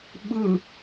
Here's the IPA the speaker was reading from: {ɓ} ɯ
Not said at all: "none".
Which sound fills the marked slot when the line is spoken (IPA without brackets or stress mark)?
ɓ